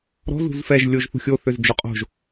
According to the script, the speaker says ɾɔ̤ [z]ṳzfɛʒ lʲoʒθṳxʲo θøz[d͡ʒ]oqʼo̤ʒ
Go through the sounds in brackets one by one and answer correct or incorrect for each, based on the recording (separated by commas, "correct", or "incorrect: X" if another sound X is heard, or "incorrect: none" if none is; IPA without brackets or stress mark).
correct, correct